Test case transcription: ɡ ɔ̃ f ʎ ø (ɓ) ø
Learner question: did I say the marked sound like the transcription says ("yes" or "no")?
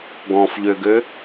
no